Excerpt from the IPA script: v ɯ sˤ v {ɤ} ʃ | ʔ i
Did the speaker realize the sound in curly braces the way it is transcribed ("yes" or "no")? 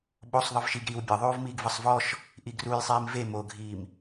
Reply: no